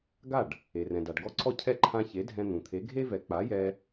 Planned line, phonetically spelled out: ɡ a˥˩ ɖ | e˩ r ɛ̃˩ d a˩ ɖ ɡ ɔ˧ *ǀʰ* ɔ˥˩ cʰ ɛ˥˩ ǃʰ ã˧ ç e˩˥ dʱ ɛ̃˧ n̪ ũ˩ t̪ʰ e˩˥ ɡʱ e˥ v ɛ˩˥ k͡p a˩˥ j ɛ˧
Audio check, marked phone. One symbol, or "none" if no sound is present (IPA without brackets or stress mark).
ǀʰ